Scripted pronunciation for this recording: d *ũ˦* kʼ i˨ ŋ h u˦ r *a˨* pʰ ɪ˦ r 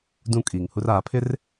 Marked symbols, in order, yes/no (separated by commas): yes, no